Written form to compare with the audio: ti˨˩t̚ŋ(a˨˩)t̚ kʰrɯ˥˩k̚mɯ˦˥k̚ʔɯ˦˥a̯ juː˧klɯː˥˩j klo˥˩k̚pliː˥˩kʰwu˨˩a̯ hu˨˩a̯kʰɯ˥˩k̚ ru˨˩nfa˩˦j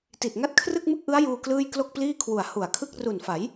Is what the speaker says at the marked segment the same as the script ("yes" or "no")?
no